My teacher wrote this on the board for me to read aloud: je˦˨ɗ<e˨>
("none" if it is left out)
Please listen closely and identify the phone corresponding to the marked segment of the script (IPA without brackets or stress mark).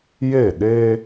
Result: e˦